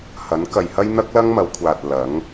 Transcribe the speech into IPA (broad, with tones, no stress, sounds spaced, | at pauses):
h ɐ˨˥ n k ɐ˨ j h ɐ˥ j n̪ ɐ˥ k̚ l ɐ˥ ŋ m ɐ˨˧ w kʷʰ aː˨ t̚ l ɐ˨˥ ŋ